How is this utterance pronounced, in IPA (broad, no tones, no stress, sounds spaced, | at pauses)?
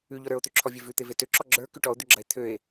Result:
ʉ ʎ ɔ ɾ ə˞ o̯ t̪ ø ǁʰ ɔ vʲ e v ʉ t̪ e v e t ø ǁ ɔ ɡ͡ǁ ə˞ k ʉ ʈ ɔ o̯ d̪ ʉ ɡ͡ǁ ɐ e̯ t̪ʰ ø e̯